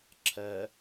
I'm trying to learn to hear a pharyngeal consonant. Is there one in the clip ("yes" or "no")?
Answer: no